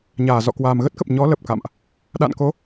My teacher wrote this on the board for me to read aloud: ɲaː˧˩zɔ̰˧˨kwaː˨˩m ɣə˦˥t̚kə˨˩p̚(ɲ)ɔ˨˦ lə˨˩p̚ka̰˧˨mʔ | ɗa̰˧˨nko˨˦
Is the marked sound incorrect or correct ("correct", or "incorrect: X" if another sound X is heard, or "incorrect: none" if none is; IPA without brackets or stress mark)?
correct